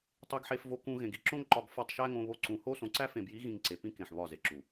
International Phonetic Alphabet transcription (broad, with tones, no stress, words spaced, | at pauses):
tˤe˧ɡħe˧fvo˧kũ˧ ɣẽ˨ɡi˦ǁõ˦ŋ ǃɒ˧ɡ fɒ˦˨tˤʃæ˦ŋõ˧ βo˧ǀũ˨ho˦ sõ˨ǀæ˦fẽ˨bji˨˦ ɣĩ˧ŋǀe˨ pĩ˦kẽ˨ħ βɒ˦˨ze˨ǁu˨